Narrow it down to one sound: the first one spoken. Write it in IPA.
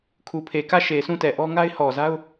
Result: kʰ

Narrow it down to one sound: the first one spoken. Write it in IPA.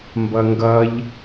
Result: m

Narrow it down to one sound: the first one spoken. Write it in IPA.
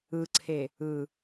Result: ɯ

